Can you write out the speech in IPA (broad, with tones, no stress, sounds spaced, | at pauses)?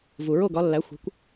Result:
v u˩ ɹ o˥˩ ɡ ɒ˩˥ lː æ˩˥ xʷ e̤˩˥ kʷ